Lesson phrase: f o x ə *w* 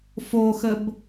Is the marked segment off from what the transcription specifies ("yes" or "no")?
yes